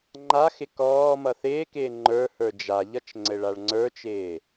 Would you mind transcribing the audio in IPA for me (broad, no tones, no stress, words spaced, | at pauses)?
ŋ͡ǃaxɪ kɔː mʌθɪːkɪː ŋ͡ǃə˞ hə˞d͡ʒaʎʌt͡ʃ ŋ͡ǀɘɭaɭŋ͡ǀə˞t͡ʃɪː